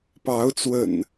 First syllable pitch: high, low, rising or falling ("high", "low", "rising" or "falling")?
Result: rising